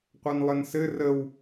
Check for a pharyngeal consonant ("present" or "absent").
absent